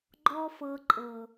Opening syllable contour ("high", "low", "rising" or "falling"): high